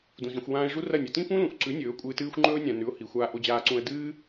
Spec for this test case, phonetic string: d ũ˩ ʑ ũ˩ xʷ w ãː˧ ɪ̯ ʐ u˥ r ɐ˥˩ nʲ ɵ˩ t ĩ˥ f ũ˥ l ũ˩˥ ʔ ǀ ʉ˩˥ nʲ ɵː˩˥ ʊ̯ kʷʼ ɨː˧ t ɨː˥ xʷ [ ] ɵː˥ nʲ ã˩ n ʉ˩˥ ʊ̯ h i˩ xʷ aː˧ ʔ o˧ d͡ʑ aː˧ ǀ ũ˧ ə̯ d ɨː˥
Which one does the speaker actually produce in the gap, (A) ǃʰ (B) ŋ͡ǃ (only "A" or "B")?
B